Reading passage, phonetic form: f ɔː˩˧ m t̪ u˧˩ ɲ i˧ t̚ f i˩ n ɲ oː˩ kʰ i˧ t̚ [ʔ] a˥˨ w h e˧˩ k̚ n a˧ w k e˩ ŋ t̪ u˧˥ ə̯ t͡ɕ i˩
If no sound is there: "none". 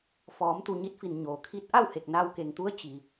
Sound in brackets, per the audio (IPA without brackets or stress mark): ʔ